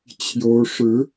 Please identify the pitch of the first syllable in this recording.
rising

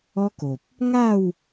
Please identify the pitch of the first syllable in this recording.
high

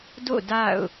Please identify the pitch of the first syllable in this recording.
falling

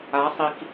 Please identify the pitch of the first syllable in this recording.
rising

